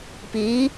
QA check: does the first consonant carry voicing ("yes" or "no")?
no